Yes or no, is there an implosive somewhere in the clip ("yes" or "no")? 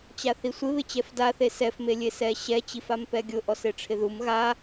no